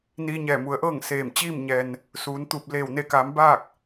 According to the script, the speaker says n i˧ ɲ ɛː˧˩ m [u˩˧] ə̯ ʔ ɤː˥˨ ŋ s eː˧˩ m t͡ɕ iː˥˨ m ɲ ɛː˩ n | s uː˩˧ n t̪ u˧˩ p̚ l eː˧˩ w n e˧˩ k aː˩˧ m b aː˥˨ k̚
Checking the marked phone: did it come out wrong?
no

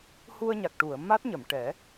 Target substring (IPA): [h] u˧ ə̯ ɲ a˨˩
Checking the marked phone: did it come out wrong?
no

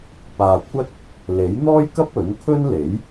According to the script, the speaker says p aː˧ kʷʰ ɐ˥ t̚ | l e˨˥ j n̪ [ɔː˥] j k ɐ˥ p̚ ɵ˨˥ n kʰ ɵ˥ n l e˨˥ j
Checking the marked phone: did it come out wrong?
no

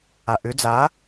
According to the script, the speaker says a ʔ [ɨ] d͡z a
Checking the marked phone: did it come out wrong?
yes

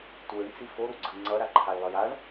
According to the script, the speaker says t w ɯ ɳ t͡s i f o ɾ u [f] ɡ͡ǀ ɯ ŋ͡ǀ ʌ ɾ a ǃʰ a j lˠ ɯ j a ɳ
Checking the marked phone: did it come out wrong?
yes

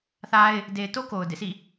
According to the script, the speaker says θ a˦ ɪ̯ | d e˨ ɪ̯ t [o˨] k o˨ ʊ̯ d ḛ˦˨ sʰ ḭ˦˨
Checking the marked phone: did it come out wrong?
yes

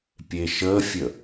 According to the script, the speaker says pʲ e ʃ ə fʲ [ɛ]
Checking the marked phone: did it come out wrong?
yes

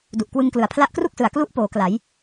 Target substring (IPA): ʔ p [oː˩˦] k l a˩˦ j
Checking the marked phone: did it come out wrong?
no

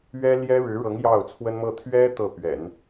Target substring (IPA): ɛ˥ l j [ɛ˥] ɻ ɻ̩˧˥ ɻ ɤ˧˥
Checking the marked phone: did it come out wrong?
no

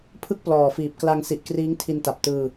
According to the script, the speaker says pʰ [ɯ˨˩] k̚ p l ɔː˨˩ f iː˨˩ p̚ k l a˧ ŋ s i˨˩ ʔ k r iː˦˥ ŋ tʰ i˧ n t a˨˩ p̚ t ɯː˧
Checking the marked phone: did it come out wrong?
yes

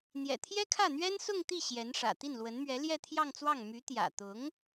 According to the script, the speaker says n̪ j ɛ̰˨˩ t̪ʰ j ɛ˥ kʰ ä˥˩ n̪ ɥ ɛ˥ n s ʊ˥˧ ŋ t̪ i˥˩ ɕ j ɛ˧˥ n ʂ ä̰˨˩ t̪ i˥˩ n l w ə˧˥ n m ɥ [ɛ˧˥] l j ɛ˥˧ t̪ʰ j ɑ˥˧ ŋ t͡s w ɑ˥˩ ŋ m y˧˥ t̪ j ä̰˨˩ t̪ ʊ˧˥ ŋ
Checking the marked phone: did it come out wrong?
no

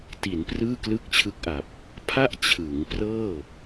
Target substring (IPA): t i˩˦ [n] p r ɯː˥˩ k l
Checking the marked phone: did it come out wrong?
no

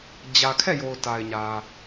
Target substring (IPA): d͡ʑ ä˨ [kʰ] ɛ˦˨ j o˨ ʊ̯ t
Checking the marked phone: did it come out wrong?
no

